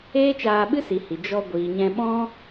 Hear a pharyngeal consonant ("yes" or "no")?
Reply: no